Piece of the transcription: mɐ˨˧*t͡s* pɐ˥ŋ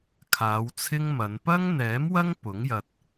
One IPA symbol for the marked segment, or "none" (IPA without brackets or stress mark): n